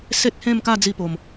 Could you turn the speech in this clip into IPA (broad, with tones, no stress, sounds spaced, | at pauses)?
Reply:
s e˦ t̚ h ẽ˥˧ m k a˥˧ d͡z i˥˧ p o˨˩ m